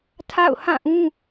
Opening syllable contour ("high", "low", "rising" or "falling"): falling